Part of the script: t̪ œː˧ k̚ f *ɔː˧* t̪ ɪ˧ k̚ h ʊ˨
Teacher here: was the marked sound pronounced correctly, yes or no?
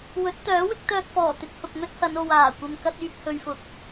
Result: no